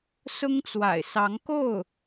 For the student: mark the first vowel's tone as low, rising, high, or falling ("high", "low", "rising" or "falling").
high